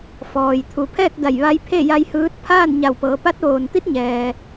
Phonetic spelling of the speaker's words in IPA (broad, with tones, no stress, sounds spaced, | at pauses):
f ɔː˩ j t̪ʰ u˩˧ pʰ ɛː˥˨ k̚ d a˧˩ j ʋ a˧˥ j pʰ e˥˨ j a˧ j h ɯː˧˥ t̚ pʰ aː˥˨ n ɲ a˧˩ w p ɤː˩˧ p a˧˥ t̚ ʋ oː˩ n t̪ i˧˥ t̚ ɲ ɛː˩